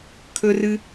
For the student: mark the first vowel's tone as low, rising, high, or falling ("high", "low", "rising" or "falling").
high